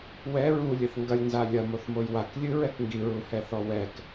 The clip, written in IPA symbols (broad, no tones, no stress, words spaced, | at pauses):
wɛ ɹulʲɘθ ŋɡɐlʲnza lʲɐmoθmoj waklʲɨɹɛk ŋɡiɹuhɛθɔ wɛk